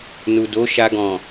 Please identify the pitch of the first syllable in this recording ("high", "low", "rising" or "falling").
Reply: low